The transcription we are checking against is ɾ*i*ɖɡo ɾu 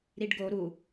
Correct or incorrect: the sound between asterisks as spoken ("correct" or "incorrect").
correct